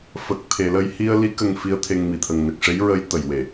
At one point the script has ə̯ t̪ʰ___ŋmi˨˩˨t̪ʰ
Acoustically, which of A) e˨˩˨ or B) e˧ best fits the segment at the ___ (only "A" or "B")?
B